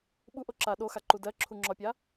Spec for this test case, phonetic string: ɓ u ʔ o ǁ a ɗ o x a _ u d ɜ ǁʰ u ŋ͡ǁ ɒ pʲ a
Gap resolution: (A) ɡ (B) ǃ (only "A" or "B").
B